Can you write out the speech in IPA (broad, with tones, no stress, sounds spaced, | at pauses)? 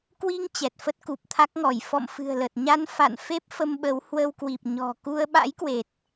k w i˧ ŋ t͡ɕ ɛ˨˩ t̚ f ə˦˥ t̚ k u˨˩ p̚ t̪ʰ a˦˥ k̚ ŋ ɔ˧˩ j f ɔ̰˧˨ m f ɨ̤˨˩ ə̯ l ə˨˩ t̚ ɲ a˧ n f a̰˧˨ n f e˦˥ p̚ f ə˧ m ɓ ə˨˦ w h w ə˧ w k w i˨˩ p̚ ɲ ɔ̤˨˩ k u˧ ə̯ ɓ a̰˧˥ j k w e˨˩ t̚